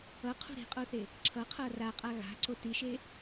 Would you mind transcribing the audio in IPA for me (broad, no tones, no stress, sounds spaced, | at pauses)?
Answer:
ʌ qʰ ṳ ɾ i̤ qʼ o θ e | ǁʰ ʌ qʰ ʌ r a qʼ a ɣ a̤ ǀ o t i ʃ e